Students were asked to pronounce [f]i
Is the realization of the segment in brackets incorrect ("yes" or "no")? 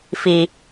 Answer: no